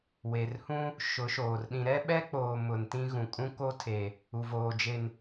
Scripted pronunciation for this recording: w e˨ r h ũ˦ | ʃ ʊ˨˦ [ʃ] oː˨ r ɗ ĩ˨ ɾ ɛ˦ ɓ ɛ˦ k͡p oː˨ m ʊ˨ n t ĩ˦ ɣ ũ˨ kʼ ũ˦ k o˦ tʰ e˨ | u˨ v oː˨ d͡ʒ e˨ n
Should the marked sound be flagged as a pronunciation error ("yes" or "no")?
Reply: no